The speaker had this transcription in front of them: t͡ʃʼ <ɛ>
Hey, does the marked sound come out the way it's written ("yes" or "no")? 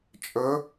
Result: no